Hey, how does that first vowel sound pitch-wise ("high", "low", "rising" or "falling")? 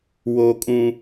high